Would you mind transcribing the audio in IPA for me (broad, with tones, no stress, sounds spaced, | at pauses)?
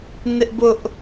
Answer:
n ɪ˦ ʔ b ʊ˦ ʔ